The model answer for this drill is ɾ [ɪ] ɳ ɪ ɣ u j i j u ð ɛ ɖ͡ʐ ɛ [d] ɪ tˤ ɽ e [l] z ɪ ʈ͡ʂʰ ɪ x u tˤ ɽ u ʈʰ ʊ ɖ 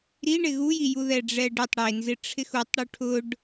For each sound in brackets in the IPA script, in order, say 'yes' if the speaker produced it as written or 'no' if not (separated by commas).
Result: no, no, no